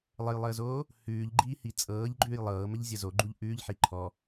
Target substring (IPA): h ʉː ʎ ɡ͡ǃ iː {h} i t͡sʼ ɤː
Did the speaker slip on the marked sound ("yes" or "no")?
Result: no